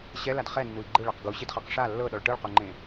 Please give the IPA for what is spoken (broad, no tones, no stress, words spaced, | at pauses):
ɕɛlad χɛnːui̯ ɡ͡ǃɯɭɛq ɡuɕidχɤq ʂa lːɤɗɔɭ ʈɯɭqoŋ͡ǃẽ